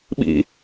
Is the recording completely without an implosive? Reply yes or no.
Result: no